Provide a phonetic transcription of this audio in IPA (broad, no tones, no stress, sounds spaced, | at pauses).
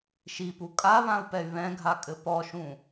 ʃ i p u kʼ a β ã u̯ p ɛ y̯ β ɛ̃ ɡʱ a kʼ ɘ p ɔ ʃ ũ